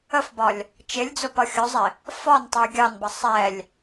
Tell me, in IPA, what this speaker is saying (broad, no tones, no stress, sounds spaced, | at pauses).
ə f b ɒ lʲ | t͡ʃ ɪ lʲ d͡z ʊ p ʌ xʲ ʊ zˤ ɪ | f ɒ n tˤ ʊ j ɡʲ ɑ n b ʌ sˤ ɛ lʲ